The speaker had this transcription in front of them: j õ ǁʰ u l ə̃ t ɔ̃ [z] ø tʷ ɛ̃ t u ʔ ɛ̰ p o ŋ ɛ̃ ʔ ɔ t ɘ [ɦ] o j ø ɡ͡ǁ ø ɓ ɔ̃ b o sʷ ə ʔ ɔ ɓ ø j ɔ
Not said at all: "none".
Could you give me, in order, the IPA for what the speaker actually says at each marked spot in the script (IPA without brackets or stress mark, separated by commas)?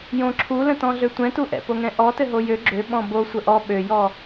ɮ, ɦ